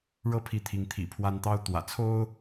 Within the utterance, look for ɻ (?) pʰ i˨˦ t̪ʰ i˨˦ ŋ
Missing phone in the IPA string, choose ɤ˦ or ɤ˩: ɤ˦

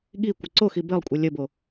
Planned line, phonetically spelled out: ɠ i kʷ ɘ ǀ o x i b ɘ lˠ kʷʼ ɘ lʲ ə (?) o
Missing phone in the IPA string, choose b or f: b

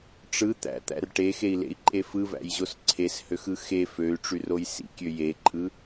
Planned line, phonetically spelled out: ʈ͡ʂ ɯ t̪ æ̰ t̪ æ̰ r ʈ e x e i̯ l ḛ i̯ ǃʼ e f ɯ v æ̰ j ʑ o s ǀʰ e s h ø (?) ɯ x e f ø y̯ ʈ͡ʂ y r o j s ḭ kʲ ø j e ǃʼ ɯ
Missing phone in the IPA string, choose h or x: x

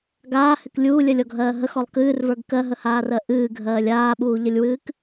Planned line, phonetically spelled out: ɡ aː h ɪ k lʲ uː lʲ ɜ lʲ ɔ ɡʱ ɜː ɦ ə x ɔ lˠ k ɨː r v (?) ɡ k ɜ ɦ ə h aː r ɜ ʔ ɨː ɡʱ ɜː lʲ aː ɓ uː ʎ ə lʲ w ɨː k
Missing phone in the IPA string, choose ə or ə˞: ə˞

